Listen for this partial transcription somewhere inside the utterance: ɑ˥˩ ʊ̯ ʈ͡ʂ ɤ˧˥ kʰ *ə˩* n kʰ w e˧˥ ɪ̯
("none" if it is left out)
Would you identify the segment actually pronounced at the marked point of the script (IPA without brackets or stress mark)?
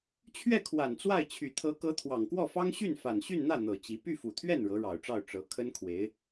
ə˥